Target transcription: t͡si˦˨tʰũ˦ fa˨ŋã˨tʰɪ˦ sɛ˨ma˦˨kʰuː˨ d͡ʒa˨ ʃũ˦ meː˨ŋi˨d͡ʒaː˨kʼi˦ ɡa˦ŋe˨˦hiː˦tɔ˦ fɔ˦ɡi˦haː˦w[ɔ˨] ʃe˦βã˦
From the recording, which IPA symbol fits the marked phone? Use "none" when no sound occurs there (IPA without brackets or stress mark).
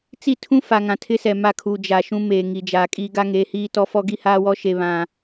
ɔ˦